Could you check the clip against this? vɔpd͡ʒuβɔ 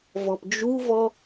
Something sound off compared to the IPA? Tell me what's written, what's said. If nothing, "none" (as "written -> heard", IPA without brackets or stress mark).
β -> v